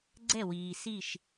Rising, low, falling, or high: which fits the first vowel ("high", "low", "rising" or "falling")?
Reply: falling